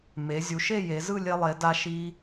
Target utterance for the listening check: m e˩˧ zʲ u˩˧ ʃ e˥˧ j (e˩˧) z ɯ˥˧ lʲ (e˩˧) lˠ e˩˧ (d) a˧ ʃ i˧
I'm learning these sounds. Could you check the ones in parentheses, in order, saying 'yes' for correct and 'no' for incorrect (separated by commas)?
yes, no, yes